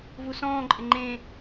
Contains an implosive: no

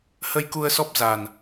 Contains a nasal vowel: no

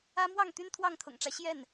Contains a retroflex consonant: yes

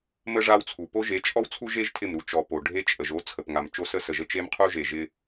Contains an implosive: no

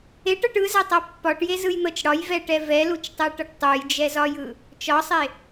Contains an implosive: no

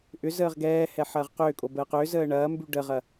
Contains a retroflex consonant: yes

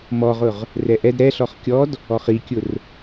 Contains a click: no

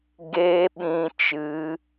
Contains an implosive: yes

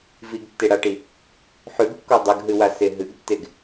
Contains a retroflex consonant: yes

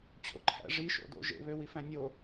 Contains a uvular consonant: no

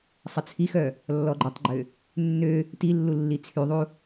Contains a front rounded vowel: yes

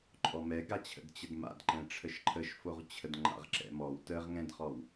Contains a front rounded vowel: no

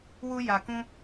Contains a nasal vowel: yes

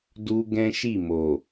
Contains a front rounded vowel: no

